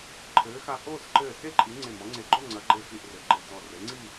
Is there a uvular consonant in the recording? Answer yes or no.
no